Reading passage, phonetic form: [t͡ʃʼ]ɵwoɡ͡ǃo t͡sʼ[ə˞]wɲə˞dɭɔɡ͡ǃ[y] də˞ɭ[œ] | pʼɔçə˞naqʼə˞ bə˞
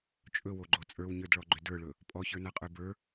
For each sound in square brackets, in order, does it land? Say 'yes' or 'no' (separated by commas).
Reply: yes, yes, no, no